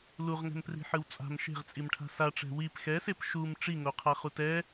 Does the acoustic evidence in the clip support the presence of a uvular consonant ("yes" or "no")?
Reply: yes